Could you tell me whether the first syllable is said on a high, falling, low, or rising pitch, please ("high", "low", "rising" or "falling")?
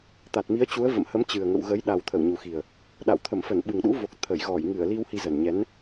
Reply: low